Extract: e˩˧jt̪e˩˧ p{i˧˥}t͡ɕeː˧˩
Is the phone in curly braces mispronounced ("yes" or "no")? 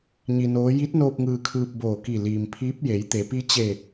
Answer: no